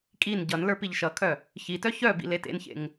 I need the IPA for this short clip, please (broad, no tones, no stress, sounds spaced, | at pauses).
kʼ i n ɟ ʌ n l ə˞ p i ʎ ʃ ʌ kʰ œ | ç i t œ ç œ b ḭ l e t ḛ n ç ḛ ŋ